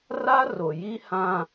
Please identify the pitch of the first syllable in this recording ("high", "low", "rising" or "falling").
high